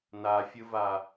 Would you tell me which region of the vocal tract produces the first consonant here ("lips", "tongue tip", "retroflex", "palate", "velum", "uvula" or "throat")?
tongue tip